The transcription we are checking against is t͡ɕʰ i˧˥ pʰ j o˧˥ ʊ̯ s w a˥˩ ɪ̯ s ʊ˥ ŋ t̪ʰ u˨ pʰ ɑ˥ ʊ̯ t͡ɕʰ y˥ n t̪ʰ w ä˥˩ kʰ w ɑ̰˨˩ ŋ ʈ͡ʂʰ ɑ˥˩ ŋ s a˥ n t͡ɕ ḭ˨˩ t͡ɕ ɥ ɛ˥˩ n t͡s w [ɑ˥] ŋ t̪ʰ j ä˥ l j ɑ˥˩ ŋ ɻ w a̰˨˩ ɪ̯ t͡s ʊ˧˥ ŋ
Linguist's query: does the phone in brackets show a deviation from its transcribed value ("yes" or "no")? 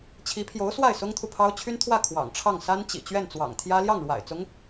yes